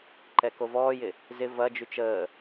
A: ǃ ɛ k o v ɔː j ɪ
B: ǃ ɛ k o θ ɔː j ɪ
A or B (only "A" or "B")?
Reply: A